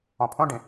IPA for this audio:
ɔ̃ pʰ õ ɖ ĩ

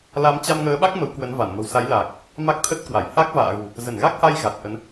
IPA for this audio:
l a˨˦ m t͡ɕ a˧ m ŋ əː˨˦ ɓ a˦˥ k̚ m ə˨˦ w k w ə˨˦ n v a˧˩ n m ə̤˨˩ w s a˨˦ j l aː˨˩ k̚ | m a˦˥ k̚ t̪ʰ ə˦˥ t̚ k w a˧˩ j h a˦˥ k̚ v a̰ː˧˨ ɣ ṳ˨˩ | z ə˧˩ n ɣ a˦˥ k̚ h a˧ j ɣ a˨˩ t̚ ʔ ə˨˦ n

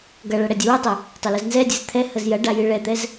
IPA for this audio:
ɡ ɐ ɭ ɐ ɽ ɛ dʲ ə w ɛ tˤ ɛ | tˤ ɐ l ə z n z ɛ dʲ ɨ z t̪ʰ ɛ h ə z j ɐ ɖ a j ɨ ɭ ɛ t̪ ɛ z

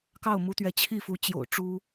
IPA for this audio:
k ɑ˥˩ ʊ̯ m u˧˥ t̪ ɥ ɛ˧˥ t͡ɕʰ i˥˩ f u˧˥ t͡ɕ j o̰˨˩ ʊ̯ ʈ͡ʂ u˥

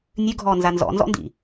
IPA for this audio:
nʲ ʉ ɡʱ ɔː n z a n z ɔ̰ n z ɔ̰ n d ḭ

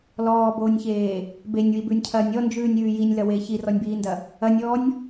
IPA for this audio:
l ɔː b oː nʲ ç eː | b e nʲ w i b ʉ nʲ cʰ ɐː nʲ ɔ n d͡ʒ ʉː nʲ ʉː j i nʲ l ɐ w eː ç i r ɔ nʲ b iː n d ɐ | ɐ nʲ ɔː nʲ

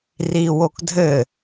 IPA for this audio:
r i w o k dʱ ɘ

